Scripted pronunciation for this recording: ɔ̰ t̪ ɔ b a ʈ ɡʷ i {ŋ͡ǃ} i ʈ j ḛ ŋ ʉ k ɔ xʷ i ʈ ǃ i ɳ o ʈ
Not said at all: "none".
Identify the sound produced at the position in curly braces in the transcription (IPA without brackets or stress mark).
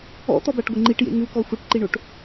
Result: ŋ͡ǃ